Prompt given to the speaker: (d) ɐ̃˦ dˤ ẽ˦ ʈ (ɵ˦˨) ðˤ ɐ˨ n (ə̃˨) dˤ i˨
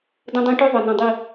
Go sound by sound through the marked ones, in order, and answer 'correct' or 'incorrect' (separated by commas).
correct, incorrect, incorrect